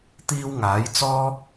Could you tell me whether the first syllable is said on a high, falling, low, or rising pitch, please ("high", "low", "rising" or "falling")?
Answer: high